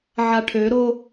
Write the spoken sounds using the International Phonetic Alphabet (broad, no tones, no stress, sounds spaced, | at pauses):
ʕ a ʈʰ ø ɾ o